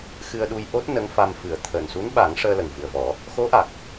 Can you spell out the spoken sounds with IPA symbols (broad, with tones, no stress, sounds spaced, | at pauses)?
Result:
x ɨ˧ ə̯ ɗ u˧ j ʔ o˦˥ t̚ n ə˧˥ ŋ f a˧ m f ɨ˨˩˦ ə̯ t̪ʰ əː˨˩ n s u˧˥ n ɓ a˨˩˦ ŋ ʂ əː˧ l ə˨˩ ŋ v ɨ˨˩ ə̯ v ɔ˨˩˦ | x o˧˥ ʔ a˨˩ k̚